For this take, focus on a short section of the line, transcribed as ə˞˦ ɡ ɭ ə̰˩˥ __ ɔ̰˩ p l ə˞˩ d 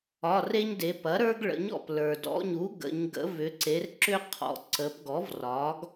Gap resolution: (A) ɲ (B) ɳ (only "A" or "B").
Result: A